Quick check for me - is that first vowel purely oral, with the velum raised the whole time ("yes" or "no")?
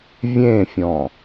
no